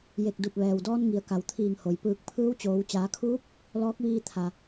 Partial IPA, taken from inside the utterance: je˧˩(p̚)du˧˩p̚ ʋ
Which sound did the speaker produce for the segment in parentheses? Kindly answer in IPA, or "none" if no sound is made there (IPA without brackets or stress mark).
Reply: k̚